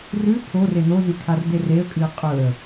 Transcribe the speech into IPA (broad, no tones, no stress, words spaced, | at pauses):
rʉ pʰo renozi kʰardereə̯kʼɨə̯ qʼɵə̯